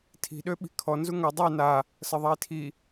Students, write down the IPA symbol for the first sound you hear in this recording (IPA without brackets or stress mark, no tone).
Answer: tʰ